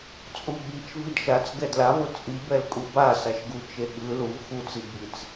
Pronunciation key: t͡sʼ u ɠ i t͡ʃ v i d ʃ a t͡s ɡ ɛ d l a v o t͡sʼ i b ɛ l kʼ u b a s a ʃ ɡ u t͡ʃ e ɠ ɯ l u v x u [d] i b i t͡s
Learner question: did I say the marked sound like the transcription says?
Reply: no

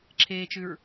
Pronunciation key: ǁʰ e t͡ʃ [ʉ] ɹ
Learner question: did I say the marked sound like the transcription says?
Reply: yes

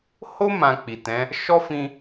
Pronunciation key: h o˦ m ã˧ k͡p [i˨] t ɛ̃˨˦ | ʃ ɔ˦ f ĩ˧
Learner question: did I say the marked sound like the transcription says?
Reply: yes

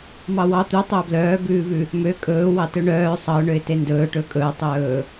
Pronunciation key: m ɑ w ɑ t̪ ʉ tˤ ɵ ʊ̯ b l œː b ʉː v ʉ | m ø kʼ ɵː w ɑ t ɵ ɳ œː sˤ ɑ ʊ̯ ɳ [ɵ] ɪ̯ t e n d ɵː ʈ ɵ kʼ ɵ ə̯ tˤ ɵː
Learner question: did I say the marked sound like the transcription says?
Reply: no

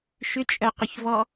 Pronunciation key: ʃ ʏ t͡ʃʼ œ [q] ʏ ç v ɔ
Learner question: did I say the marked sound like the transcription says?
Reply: yes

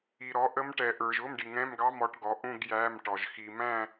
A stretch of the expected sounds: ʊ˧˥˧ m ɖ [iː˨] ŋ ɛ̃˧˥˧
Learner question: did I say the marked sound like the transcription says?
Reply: no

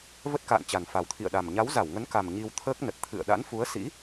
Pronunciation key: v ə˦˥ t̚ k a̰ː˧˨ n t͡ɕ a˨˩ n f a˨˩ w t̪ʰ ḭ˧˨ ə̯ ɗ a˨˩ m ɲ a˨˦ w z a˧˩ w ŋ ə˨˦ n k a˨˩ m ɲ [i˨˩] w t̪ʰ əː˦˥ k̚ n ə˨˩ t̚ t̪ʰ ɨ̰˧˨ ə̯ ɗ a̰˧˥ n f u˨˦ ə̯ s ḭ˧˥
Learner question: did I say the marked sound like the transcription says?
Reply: no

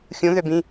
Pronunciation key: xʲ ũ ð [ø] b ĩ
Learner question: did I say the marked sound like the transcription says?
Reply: yes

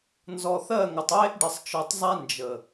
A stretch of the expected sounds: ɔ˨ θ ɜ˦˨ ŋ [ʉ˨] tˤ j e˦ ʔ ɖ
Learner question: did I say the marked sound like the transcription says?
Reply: no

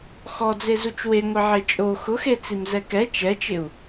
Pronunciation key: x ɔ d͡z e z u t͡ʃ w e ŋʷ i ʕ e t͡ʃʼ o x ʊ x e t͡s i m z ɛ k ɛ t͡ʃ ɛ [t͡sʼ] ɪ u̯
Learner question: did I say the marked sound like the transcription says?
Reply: no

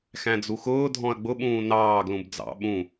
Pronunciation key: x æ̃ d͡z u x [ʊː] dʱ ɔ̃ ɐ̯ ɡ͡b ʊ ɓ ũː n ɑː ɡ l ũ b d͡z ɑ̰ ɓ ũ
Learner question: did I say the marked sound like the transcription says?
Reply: yes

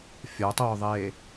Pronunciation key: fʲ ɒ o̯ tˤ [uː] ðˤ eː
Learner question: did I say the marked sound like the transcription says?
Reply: no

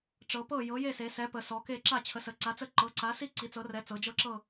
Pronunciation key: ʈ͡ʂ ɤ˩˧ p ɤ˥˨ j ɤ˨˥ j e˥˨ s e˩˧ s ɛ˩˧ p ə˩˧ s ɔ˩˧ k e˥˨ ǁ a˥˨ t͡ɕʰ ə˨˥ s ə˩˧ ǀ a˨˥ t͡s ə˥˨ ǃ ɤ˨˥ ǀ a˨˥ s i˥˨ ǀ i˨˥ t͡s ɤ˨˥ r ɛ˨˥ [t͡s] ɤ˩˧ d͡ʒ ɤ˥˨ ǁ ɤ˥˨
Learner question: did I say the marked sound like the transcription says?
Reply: yes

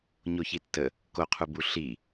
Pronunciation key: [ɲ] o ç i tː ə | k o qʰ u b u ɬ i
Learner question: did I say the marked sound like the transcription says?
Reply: yes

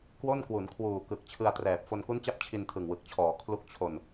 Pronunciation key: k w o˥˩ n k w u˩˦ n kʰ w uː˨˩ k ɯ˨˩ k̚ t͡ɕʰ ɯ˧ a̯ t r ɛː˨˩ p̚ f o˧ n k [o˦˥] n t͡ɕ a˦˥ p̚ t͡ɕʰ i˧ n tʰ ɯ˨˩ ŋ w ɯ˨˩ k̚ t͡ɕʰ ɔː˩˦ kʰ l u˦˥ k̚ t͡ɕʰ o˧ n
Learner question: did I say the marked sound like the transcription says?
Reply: no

